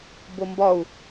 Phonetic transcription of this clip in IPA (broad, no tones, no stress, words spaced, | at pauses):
bombɒu̯